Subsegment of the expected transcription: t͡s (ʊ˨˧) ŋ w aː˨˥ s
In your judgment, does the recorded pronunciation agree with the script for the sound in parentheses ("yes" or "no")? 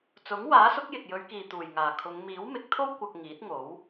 no